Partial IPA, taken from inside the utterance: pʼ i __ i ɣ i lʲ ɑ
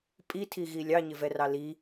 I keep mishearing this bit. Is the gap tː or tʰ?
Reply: tʰ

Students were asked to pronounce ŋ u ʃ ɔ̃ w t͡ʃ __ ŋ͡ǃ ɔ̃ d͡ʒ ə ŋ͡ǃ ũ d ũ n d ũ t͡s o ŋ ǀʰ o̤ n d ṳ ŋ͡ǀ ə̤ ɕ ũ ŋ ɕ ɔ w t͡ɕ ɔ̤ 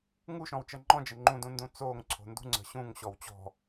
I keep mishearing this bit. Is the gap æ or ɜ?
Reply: ɜ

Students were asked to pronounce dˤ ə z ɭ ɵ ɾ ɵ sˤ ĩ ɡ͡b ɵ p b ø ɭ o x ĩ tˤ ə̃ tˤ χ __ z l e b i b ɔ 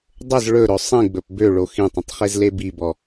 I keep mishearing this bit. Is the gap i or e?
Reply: e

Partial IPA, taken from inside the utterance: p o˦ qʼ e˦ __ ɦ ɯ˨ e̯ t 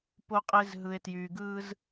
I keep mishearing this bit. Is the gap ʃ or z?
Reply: z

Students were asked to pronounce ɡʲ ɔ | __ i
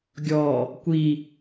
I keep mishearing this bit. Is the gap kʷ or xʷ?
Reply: kʷ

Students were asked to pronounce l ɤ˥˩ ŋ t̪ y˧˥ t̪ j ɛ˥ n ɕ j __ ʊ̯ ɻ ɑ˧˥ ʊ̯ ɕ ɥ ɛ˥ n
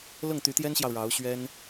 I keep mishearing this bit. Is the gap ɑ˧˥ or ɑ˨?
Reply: ɑ˨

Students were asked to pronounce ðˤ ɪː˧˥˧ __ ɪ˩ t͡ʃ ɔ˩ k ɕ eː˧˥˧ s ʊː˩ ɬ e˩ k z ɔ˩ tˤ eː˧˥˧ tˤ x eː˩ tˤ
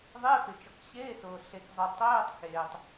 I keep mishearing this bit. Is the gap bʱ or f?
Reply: f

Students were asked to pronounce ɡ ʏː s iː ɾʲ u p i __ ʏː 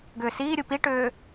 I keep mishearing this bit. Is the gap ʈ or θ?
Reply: ʈ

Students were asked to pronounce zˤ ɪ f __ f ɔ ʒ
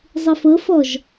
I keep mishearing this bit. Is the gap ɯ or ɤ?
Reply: ɤ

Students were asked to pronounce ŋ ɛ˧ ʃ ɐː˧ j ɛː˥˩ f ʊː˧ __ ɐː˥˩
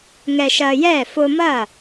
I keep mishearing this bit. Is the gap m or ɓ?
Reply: m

